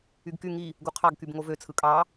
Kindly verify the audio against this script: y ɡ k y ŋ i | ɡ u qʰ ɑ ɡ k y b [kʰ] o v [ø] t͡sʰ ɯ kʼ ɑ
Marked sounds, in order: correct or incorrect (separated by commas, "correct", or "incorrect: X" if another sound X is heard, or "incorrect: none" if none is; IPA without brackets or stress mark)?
incorrect: ŋ, correct